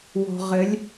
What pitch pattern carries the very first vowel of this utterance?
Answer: low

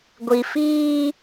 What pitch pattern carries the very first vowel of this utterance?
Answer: low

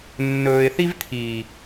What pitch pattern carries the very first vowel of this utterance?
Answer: low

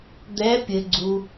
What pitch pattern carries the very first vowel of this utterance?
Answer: rising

